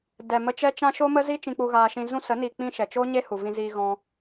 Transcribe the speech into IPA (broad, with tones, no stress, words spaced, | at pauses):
dɛ˨mə˧t͡ʃɛ˦t͡ʃã˦ ʃoː˦mə˦zi˦ t͡ʃĩ˧k͡pu˧ ɣaː˧ʃĩ˧ zũ˧sə˨˦ni˨k͡pĩ˧ ʃɛ˨t͡ʃo˦ɲe˦ hu˨vĩ˧ziː˧ɣɔ̃˧